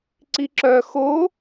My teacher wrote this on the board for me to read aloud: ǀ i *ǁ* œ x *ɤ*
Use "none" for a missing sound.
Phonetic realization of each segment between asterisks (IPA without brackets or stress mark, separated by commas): ǁ, o